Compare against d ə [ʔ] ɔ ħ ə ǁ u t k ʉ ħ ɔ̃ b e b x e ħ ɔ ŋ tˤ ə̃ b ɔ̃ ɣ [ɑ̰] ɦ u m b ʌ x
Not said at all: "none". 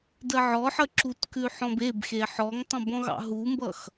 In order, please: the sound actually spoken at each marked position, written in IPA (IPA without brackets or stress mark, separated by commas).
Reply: ʕ, ɑ̰